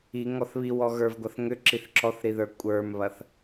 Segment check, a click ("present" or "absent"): present